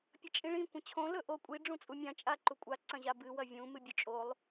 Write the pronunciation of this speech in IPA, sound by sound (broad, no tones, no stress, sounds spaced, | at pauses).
pʲ ɐ t͡ʃʼ ĩ ɭ ĩ kʷ ɐ̃ t͡ɕʰ õ l ɵ ʔ o kʷʼ i ɖ͡ʐ ũ t͡sʼ u mʲ ã t͡ʃʼ a ǃ u kʷʼ a ǀ ɐ̃ ʑ a b ɨ w ɐ vʲ ũ m ɨ bʲ ɵ t͡ʃʼ o lˠ